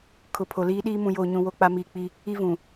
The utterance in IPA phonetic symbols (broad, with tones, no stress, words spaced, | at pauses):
kʰʊ˨pʰo˨liː˦ɗiː˦ mũ˨joː˨ɲũ˨ wo˦˨k͡pa˦miː˨k͡pi˦ | i˦vũ˨